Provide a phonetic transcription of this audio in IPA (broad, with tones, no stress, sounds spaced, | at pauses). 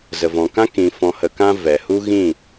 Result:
z ə˨ v ɔ̃˨ k ã˦ k ĩ˨ f ɔ̃˨ h ə˨ k ã˧ v ɛ˨ h u˦ ɣ ĩ˦˨